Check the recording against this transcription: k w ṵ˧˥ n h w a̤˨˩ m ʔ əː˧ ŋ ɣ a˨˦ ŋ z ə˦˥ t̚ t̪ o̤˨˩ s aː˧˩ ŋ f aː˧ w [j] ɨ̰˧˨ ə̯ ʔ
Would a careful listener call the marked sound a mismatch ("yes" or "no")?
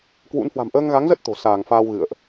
yes